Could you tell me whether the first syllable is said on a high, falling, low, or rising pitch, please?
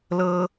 high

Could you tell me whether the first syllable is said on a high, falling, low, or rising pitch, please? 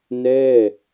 falling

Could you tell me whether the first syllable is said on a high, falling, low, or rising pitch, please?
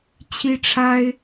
high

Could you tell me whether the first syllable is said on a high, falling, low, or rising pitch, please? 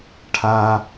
high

